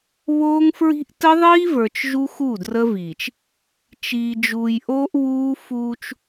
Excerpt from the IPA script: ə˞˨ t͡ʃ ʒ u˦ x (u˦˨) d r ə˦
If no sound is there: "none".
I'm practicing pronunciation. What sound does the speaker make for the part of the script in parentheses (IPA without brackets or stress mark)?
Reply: u˦˨